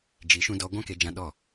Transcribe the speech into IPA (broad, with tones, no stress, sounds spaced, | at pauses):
d͡ʒ i˨˦ ʃ ũ˧ d ɔ˧ ɡʷ ã˦ k e˧ d͡ʒ ã˧ ɗ ɔ˦˨